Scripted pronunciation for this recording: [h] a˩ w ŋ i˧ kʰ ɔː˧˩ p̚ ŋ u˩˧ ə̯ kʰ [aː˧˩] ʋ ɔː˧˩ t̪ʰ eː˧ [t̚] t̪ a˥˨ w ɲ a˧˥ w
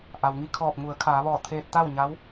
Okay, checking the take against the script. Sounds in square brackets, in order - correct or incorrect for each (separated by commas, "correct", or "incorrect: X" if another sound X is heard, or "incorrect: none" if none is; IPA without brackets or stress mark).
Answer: incorrect: ʔ, incorrect: aː˩˧, correct